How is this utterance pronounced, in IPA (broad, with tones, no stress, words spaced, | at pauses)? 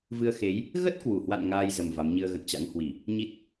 vɨ˧ə̯xe˨˦j | ɣə˦˥t̚kwu˧˩hwa̰˧˨n ŋaː˧jzə˨˩m va˨˦m ɲɨ˧ə̯ ɣə̰˧˨nt͡ɕa̰˧˥ŋ hwi˧˩˨ | ɲi˦˥t̚